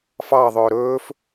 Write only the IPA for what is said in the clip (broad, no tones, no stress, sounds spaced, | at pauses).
f ɑ ðˤ ɵː ɾ ɵː f